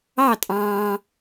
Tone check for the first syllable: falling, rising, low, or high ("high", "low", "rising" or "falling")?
falling